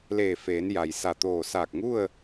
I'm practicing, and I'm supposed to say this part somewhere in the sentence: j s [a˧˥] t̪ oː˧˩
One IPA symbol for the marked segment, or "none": a˧˩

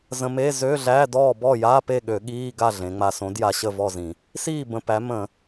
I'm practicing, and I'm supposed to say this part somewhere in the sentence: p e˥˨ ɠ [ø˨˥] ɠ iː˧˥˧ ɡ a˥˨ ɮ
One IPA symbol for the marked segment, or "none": ø˧˩˧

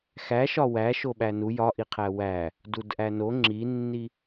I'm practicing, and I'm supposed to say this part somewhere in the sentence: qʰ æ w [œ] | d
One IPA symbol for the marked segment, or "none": æ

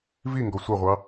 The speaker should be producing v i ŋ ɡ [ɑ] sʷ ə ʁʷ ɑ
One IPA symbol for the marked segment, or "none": ɔ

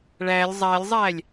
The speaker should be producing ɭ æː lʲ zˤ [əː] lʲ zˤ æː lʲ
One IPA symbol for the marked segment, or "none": æː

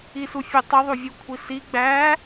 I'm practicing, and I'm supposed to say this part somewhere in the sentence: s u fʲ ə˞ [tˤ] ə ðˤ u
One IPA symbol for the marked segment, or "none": tˤ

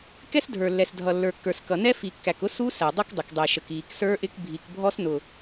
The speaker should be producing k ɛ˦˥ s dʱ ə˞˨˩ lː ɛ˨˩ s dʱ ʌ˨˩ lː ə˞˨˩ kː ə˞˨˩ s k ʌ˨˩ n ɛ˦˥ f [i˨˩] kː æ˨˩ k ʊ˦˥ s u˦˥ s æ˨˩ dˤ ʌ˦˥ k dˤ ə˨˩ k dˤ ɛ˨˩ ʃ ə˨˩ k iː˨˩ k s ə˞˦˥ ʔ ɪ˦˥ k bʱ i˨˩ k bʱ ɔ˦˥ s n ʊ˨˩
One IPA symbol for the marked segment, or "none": i˨˩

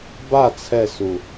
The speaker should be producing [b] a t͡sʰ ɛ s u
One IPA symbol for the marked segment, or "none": b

